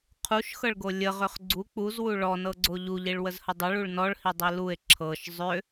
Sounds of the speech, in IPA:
qʰ u ʃ x ɤ ɭ ɡ o lʲ ə ʁ ʏ χ ɡ͡ǀ u k͡p u z w u ɭ ɔ n ɤ ɡ͡ǀ o ʎ u ʎ i ɭ w ə z h ə dˤ ʏ ɭ u ɭ n ɔ ɭ h i dˤ i l u e̯ ǁʰ ɤ ʃ zˤ ʏ

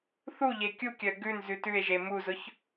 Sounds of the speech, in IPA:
θ u ʎ e kʲ u kʲ œ ɡ ʉ n z ʉ t ʉ e̯ ʒ e m u z ʊ ç

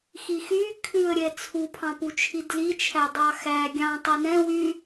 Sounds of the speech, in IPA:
x i x y kʰ ʉ ə̯ ɾʲ ɛ t͡sʰ u pʰ ɑ̃ p u t͡ʃʰ i d l i t͡ʃʰ æ dˤ ɑ x æ ɡʲ ɑ̃ tˤ i n ɛ̃ w y

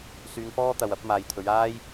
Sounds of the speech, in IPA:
s yː˧ ŋ f ɔː˥ t̪ ɐ˨ w ɐ˨˥ p̚ m aː˨ j t̪ʰ ɵ˨˧ ɥ aː˥ j

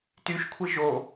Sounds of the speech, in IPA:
t y ʃ kʷʰ i ʒ o

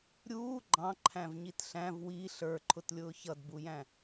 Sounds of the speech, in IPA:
ɾʲ uː ɡ͡ǃ ɑ̃ ǃʰ æ̃ v ɲ i t ɬ æ̃ v w i ɬ ə˞ ǃʰ ʊ t lʲ ʊː ç ʌ d b u j æ̃

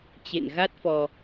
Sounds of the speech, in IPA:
t͡ɕ ḛ˧˨ n ɣ a˦˥ t̚ f ɔ˧

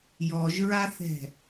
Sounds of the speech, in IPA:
j ɔ ʒ ɹ a θ ɛ̤

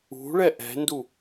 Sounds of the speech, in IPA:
ṳ ɭ ɛ ʔ ɛ̤ n d u

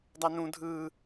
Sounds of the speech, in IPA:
dˤ æ n ũ dʱ ɯː

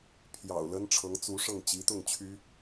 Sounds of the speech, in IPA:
pʰ j ɑ̰˨˩ ʊ̯ l ə˥ n ʈ͡ʂʰ ɤ˧˥ ŋ t͡s u˧˥ ʂ ɤ˥˩ ŋ t͡ɕ i˧˥ t̪ ʊ˥˩ ŋ t͡ɕʰ y˥

